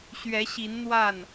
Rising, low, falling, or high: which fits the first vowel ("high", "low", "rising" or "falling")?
rising